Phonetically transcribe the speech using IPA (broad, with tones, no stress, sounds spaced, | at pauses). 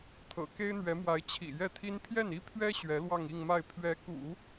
t̪ʰ ɤ̰˨˩ k e˥ ɪ̯ n̪ ɥ ɛ˧˥ m w a˧˥ ɪ̯ t͡ɕʰ ḭ˨˩ j ɛ˥˩ t̪ʰ i˥ n pʰ j ɛ˥˩ n i˥ pʰ ɥ ɛ˥ ɕ ɥ ɛ˧˥ l w ɑ˥˧ ŋ i˥˧ ŋ m a˥˩ ɪ̯ pʰ ɥ ɛ˧˥ k ṵ˨˩˦